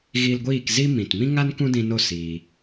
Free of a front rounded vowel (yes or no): yes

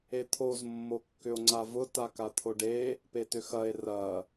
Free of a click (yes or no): no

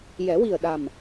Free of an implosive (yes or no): no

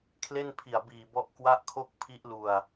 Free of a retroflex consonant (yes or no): yes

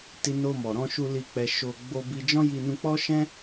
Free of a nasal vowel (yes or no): no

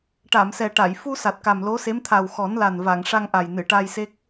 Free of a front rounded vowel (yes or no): yes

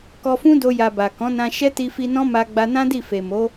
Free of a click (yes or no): yes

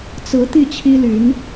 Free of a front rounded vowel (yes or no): no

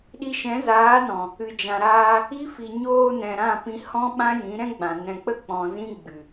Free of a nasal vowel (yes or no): no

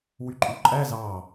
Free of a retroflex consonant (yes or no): yes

